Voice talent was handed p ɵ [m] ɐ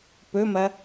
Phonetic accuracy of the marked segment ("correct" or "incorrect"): correct